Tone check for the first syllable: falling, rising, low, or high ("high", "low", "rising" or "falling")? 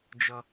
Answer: high